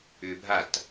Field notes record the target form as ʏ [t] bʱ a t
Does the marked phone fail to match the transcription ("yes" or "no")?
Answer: yes